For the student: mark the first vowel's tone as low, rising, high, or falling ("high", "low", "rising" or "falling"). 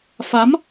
rising